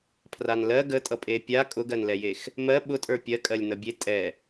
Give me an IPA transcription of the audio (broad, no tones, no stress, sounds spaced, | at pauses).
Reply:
pʰ r a n l ɜ ɡ ə tʼ ʌ pʼ e pʲ a kʼ ʊ ɡ ɜ n l ɛ j e x | m ɜ ɓ ʊ tʼ ə˞ pʲ ɜ kʼ ɜ lʲ n ʌ bʲ e tʼ ɛ